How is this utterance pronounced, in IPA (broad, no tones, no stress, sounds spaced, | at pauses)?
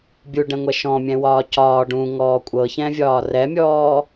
bʲ u ɖ ɛ̃ ŋʷ ɛ ʃ ɔ̃ mʲ ɛ̃ w ɒː c ɒː ɖ ũ ŋ ɔː kʷʼ ɤ ç ɛ̃ vʲ ɒː r ɛ mʲ ɔː